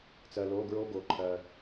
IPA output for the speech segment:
t͡s ɜ˩ l o˩˧˩ ɡ ɹ o˧ ɡ o˩ ǃʰ ɜ˩

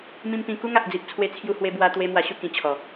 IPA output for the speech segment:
m ĩ˧ m p ĩ˧ k u˦ ŋ a˨ ʔ d͡z i˨ p̚ t͡sʰ w e˧ t͡sʰ j u˧ h w e˧ b w a˧ t̪ w e˧ m w a˧ ɕ u˥˧ k ĩ˧ t͡ɕʰ ɔ˨˩

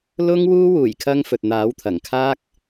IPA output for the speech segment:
l ʊ˥ ŋ w uː˥ w uː˨˩ j kʰ ɐ˧ ŋ f ɵ˨ t̚ n̪ aː˨˥ w t̪ʰ ɐ˨˩ ŋ kʰ aː˥ k̚

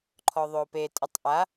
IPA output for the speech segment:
ǃʰ ɔ ðˤ o p e tʼ ə tˤ ʔ a

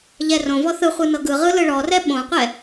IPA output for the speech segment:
ʎ ɛ r õ v ɔ θ ɯ χʷ ɯ n ɤ ɡ ɯ ʁ ɯ l ɯ ɭ ɔ r ɛ ɓ õ qʷ ɛ

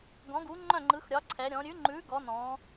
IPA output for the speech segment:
ɡ ɔ̃˨˦ ɡ u˨˦ ŋ͡ǃ œ̃˦˨ ŋ͡ǃ ɯ˨˦ x ɾʲ ɒ˨˦ ǀʰ ɛ˨˦ ɾʲ ɔ̃˨˦ ɾʲ ʉ˨˦ ŋ͡ǃ ʉ˨˦ ɡ ɔ˨˦ n ɔ̃˨˦

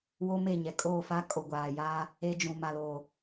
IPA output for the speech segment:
w o˦ m e˦˨ ɲ ɛ˨ kʼ oː˦˨ f a˦ kʼ o˨ ɡʷ aː˨ j aː˦ | e˦ d͡ʒ ũ˨ m a˨ l oː˨

